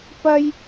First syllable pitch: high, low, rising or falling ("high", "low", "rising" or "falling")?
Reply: high